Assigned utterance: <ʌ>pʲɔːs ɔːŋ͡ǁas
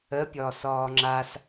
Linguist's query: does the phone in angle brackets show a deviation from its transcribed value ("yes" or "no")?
yes